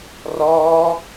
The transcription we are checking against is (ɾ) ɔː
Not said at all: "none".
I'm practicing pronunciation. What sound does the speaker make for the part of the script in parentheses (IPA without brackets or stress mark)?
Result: r